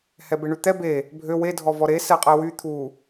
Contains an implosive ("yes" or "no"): no